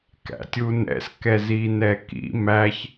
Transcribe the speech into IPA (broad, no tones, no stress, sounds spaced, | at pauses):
k æ̰ tʲ u n ɛ̰ s k ɛ z i n ɛ k ḭ m æ ç